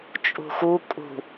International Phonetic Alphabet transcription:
t͡ʃʼ ṳ x u kʼ ṳ

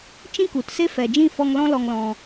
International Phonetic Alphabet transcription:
t͡ʃ ĩ˦ k u˨ t s e˦ f ɛ˨ d͡ʒ ĩ˦˨ f ɔ˧ ŋ l ɔ̃˦ l ɔ˧ ŋ l ɔ̃˧

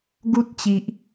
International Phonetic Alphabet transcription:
ɡ u˦ t̚ t͡ɕ i˨ ʔ

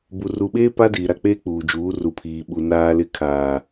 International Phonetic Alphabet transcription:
b u˨ r u˨ ɓ eː˦ p a˦ d iː˨ ɾ a˦˨ k͡p eː˦ k͡p uː˨ d͡ʒ uː˨˦ r u˨ pʰ iː˨ ɓ u˨ n aː˨ l ɪ˨ kʰ aː˨

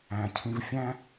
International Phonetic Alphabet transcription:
æ̃˩ cʰ ĩ˧ v fʲ æ̃˥

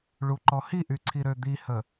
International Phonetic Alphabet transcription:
ɭ u ǃ ɔ h i ʔ y ǀʰ i ɾ ø d̪ i h ə

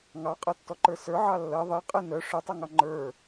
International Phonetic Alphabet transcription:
ŋ ɑ qʼ ɜ tː ɔ ǃ ə˞ s ə˞ ʕ ɑ lː ɜ ðˤ e qʼ e n œ ʂ œ tˤ a ŋ ɑ ŋ͡ǃ ə˞

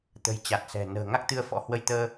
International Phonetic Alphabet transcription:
t̪ ə̤˨˩ j t͡ɕ a˨˩ t̚ s ɛ̤˨˩ n ə̤ː˨˩ ŋ a˦˥ k̚ t̪ ɨ˧ ə̯ f ɔ̰˧˥ h w ə˧ j t̪ əː˧

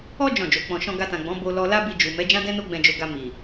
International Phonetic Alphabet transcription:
ɔ˦ d͡ʒ ɔ̃˦˨ d͡ʒ o˨˦ k͡p ɔ̃˧ ʃ ɔ̃˧ ɡ a˧ t ã˨ ɡ͡b ɔ̃˨˦ b o˧ l ɔ˧ l a˦ b i˧ d͡ʒ u˨ m ɛ˨˦ d͡ʒ ã˦ d ɛ̃˦ n o˦ ɡ͡b ɛ̃˧ d͡ʒ o˧ ɡ a˧ m i˨

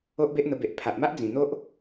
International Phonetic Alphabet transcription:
o˦ ʔ b e˦ ʔ n̪ ə˧ b e˨ ʔ pʰ a˨ ʔ m a˦ ʔ d͡z ĩ˨˩ n̪ o˦ ʔ

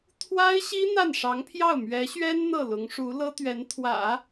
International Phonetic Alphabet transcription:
t̪ʰ w a˥ ɪ̯ ɕ i˥ n̪ a˥˩ n ʂ ɑ˧˥ ŋ pʰ j ɑ˥˩ ʊ̯ m ɥ ɛ˧˥ ɕ ɥ ɛ˥ n n̪ ɤ˥˩ l ʊ˧˥ ŋ ʂ u˧˥ l ɤ˥ t̪ ɥ ɛ˧˥ n t̪ʰ w ä̰˨˩˦

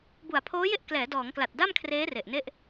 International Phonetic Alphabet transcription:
b u˨˩ a̯ pʰ oː˦˥ j e˥˩ ʔ k l ɛː˩˦ d ɔː˩˦ ŋ k l a˨˩ t̚ d a˥˩ m kʰ r eː˦˥ r e˨˩ ʔ n e˥˩ ʔ

